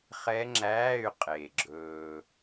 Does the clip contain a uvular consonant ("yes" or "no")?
yes